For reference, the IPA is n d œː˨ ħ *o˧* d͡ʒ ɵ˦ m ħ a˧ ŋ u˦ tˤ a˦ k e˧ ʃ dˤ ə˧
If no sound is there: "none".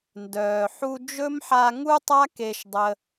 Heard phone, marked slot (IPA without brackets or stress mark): u˧